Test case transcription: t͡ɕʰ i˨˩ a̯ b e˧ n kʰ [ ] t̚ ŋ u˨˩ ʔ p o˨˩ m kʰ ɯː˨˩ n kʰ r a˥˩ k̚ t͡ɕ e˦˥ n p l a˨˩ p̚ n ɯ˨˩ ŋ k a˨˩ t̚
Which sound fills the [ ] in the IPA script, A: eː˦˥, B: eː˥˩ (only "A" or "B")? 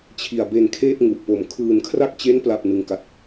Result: B